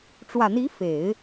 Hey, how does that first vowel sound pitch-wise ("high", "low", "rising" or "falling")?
low